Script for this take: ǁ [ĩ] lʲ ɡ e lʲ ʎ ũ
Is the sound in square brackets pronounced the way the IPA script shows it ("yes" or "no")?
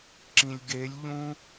yes